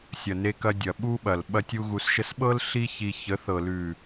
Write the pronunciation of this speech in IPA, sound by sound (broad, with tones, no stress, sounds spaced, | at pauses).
sʲ ɐ˨ n e˧ k ɐ˧ dʲ ɐ˨ ɓ u˦ ɓ ɐ˨ l ɓ ɐ˦ tʲ u˦ ɣ u˧ s ʃ ə˦ s ɓ ɤ˦ l ɬ i˦ ç i˧ ç ə˨˦ θ ɤ˨ l ʉ˨